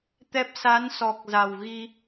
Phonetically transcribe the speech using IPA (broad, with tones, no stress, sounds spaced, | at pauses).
t̪ ɛ˦˥ p̚ s a˨˦ n s ɔ˨˩ k̚ z a˨˩ w ɣ i˧